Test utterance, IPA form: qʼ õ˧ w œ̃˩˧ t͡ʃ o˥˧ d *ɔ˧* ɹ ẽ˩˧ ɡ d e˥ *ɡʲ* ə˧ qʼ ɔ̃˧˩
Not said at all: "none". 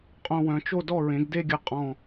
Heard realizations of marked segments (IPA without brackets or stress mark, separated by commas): ɔ˥˧, ɡʲ